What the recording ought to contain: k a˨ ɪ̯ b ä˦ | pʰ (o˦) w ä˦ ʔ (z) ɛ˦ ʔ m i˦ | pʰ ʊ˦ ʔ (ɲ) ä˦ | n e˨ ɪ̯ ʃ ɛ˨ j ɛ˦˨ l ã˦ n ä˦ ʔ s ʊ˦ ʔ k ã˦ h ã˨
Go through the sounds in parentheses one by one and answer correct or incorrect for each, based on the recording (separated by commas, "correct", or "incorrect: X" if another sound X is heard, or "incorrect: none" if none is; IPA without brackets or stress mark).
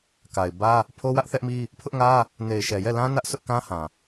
correct, incorrect: θ, incorrect: ŋ